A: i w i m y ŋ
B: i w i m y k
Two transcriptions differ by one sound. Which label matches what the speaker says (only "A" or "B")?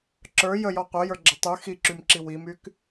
B